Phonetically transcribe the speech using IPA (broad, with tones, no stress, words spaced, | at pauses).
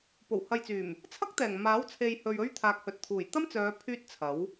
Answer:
po˨˩whɐ˨jt͡syː˨˩m | t͡sʰɐ˥k̚t̪ɛː˨˩ŋ maː˨˥wt͡sʰe˨j hɵ˧ɥɵ˥ɥ t̪ʰaː˨k̚hɵ˨t̚t̪ʰuː˨˩j t̪ɐ˥mt͡sœː˨˧ pʰyː˥t̚t͡sʰɐ˨˥w